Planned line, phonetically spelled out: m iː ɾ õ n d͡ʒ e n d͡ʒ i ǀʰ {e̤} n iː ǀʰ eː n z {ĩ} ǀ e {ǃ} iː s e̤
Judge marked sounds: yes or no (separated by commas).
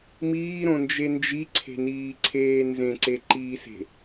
yes, no, yes